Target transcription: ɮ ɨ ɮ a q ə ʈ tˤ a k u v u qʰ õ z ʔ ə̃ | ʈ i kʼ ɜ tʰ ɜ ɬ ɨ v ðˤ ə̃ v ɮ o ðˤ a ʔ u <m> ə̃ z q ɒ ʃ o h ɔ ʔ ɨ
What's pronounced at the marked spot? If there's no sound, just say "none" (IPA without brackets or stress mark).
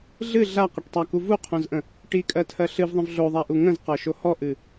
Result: ŋ